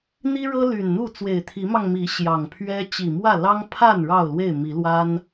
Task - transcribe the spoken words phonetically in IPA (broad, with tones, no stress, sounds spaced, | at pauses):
n̪ i˦ ɻ ɤ˦ l y˨˩ n n̪ u˥˨ t͡s w e˨˩ ɪ̯ t̪ʰ i˨˦ m ɑ˧ ŋ m i˨˦ ɕ j ɑ˨˩ ŋ pʰ ɥ ɛ˦ t͡ɕ i˨˩ m w ä˥˨ l ɑ˦ ŋ pʰ a˥˨ n ɻ ɑ˥˨ ʊ̯ l w e˥˨ ɪ̯ m i˨˦ l w a˦ n